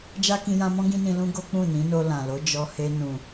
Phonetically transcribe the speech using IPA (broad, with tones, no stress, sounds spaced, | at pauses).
d͡ʒ a˦ k ĩ˧ j ã˧ m ɔ̃˦ ɡ ĩ˦ n ĩ˧ l ũ˦ ɡ o˦ k͡p ũ˦˨ n ĩ˨˦ n o˧ l ã˨ l o˨˦ d͡ʒ ɔ˧ h e˧ n ũ˨